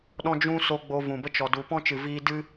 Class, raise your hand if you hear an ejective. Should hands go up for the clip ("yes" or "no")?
no